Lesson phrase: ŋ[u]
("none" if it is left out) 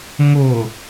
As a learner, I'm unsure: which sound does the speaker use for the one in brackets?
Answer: ʊ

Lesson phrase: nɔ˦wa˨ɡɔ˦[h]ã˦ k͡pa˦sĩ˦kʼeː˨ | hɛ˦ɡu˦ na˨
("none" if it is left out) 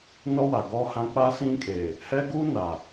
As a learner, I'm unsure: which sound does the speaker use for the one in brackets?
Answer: h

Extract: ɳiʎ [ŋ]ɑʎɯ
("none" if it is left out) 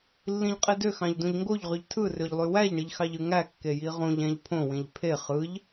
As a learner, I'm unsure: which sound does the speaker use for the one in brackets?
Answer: x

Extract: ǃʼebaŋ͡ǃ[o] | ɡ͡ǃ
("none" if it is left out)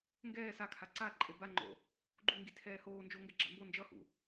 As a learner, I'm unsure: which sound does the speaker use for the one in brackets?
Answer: o̰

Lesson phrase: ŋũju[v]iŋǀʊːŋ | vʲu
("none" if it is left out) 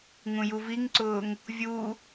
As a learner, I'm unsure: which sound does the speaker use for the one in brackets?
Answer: v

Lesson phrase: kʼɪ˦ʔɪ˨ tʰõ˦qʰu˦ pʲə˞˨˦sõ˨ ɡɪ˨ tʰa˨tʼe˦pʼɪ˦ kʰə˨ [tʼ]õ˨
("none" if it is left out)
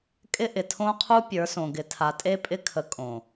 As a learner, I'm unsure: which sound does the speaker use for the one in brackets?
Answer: kʼ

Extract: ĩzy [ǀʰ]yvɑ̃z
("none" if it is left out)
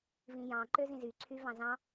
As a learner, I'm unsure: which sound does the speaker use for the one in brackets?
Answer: ǀʰ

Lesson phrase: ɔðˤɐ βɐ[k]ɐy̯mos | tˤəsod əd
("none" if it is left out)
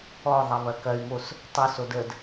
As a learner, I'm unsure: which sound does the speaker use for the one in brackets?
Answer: k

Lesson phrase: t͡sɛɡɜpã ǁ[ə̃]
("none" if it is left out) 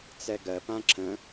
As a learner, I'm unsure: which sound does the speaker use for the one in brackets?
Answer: ə̃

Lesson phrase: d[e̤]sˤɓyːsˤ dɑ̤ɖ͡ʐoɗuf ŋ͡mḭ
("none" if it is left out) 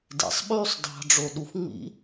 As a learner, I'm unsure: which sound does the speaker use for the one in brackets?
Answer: ḛ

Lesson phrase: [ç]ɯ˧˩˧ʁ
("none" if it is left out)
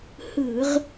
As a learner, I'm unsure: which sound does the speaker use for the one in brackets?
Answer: h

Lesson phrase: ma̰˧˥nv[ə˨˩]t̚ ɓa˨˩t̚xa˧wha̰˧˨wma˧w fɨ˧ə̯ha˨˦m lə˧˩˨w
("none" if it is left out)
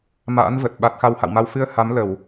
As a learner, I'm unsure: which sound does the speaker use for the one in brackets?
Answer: ə˨˩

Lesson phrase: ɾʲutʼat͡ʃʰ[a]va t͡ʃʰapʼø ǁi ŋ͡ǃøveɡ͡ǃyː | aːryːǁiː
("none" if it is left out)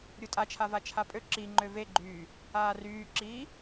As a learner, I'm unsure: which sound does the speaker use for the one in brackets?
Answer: a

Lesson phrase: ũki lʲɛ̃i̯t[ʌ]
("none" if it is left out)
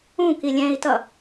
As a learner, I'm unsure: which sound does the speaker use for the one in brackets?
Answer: ʌ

